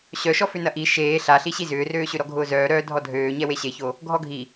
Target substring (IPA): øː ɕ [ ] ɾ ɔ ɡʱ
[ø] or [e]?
ø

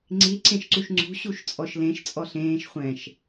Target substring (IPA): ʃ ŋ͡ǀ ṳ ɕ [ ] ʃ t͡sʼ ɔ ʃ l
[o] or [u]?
u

